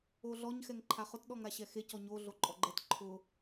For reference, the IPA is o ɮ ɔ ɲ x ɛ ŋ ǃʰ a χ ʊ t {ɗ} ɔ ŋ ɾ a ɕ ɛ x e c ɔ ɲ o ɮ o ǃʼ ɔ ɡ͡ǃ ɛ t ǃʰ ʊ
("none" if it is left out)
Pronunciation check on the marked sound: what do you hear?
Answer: ɗ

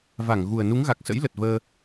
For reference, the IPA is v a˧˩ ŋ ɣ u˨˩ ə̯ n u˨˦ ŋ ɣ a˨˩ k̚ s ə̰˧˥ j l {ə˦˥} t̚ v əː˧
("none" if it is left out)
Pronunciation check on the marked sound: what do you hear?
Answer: ə˨˩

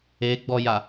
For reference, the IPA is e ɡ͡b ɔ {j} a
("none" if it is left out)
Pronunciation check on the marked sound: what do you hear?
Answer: j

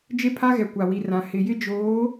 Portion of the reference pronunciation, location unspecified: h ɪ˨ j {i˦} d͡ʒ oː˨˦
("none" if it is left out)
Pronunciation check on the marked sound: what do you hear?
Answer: ɪ˦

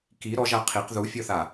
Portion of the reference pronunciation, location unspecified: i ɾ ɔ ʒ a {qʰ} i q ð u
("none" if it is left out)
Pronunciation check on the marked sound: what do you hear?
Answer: qʰ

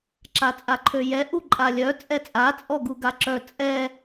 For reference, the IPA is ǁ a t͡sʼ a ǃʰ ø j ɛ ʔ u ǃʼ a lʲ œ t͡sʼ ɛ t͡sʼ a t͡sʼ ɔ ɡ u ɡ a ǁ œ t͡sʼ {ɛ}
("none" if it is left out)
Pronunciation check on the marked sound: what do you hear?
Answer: ɛ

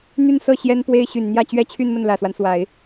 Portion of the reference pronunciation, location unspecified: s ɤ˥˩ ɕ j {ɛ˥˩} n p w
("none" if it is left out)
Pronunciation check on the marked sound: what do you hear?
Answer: ɛ˥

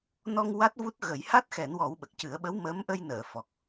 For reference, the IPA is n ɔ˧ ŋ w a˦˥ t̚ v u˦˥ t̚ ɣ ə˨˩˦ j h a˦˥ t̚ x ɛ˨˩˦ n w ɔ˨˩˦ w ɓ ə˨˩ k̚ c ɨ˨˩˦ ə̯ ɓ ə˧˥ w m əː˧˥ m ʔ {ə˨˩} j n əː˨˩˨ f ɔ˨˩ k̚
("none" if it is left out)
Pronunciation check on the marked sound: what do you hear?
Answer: ə˧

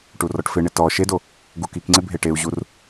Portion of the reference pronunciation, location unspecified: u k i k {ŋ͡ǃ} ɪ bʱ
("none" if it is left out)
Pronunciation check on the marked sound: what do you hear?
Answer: ŋ͡ǀ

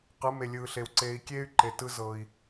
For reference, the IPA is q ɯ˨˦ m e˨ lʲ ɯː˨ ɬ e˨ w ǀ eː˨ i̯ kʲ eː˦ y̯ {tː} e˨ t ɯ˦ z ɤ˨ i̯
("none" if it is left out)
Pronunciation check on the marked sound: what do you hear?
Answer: ǃ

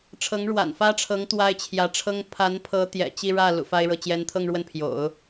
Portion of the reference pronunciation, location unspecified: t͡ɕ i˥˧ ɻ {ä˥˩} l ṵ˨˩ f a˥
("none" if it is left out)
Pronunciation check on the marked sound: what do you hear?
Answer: ä˥˩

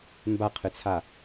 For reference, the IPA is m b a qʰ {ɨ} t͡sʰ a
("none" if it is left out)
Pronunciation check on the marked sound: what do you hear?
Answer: ɨ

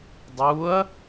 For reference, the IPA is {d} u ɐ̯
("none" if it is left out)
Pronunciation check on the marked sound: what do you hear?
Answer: dˤ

